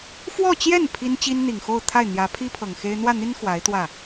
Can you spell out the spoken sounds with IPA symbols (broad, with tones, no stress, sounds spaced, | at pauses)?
f w ɔ˥˧ t͡ɕ j ɛ˥˩ n pʰ i˥ n t͡ɕ i˥ n n̪ i˨˩ ŋ x o˥˧ ʊ̯ t̪ʰ a˥˩ ɪ̯ n̪ j ä˧˥ pʰ i˥ pʰ ɤ˨˩ ŋ x e˥ ɪ̯ n̪ w ä˥˩ n̪ i˥ n x w a˧˥ ɪ̯ t̪ w ä˥˩